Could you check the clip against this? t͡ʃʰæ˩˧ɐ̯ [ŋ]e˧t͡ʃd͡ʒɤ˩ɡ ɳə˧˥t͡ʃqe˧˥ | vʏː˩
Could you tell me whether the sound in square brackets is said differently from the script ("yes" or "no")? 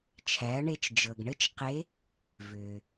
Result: yes